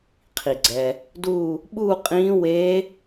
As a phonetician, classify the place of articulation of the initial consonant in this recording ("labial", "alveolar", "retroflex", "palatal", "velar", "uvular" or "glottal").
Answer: uvular